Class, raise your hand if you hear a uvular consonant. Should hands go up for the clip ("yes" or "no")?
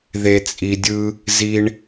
no